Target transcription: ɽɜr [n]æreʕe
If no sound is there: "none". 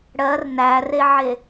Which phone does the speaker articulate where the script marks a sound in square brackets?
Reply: n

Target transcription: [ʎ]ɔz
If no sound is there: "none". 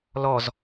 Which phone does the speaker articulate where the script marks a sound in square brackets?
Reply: l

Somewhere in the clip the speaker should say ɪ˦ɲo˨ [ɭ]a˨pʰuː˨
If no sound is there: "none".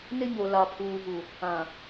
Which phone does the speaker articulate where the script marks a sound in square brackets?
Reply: l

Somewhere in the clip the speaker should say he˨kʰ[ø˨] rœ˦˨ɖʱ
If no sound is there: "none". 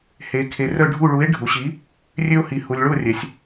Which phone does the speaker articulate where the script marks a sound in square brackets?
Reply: e˨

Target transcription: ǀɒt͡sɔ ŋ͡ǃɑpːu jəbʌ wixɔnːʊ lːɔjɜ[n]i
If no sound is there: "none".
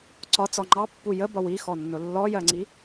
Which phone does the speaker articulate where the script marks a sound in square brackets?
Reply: ŋ͡ǀ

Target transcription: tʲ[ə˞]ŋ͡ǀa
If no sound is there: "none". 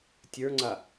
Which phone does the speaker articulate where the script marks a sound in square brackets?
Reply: ə˞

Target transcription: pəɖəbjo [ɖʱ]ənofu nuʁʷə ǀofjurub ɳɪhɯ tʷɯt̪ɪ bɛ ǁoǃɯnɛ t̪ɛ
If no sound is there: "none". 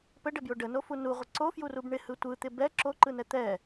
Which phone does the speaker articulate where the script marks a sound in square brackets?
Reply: ɖ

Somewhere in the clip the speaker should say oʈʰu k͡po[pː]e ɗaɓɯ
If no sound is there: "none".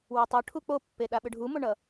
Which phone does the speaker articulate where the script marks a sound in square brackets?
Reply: pː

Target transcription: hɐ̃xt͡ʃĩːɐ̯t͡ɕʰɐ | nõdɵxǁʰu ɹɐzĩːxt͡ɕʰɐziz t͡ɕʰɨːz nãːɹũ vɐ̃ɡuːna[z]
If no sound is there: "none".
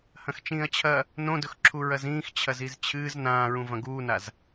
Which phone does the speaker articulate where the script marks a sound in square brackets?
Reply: z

